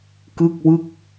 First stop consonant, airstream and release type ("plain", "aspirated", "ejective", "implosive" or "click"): plain